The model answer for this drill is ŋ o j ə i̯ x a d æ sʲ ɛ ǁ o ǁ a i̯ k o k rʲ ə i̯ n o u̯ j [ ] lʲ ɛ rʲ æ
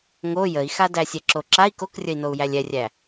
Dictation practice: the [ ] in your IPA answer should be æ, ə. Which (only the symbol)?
æ